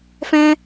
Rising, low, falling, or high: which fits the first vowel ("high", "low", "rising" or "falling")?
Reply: high